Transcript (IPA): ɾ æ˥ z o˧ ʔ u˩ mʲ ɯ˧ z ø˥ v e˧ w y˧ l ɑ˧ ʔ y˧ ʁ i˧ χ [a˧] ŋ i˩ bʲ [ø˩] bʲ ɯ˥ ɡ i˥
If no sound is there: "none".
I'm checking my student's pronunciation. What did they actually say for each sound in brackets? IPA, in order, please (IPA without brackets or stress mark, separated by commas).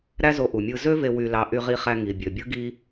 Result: æ˧, ø˩